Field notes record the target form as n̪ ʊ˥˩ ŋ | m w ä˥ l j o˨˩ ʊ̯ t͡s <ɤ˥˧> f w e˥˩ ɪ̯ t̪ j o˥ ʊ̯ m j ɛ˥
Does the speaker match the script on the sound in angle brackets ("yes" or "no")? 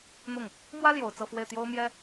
yes